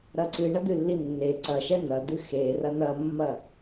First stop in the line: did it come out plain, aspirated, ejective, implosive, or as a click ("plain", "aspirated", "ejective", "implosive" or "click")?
click